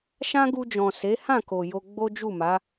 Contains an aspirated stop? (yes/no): no